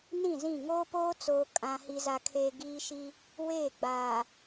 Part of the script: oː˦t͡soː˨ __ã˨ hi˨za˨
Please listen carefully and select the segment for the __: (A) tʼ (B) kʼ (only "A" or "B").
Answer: B